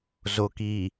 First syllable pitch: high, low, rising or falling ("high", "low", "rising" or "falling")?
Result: low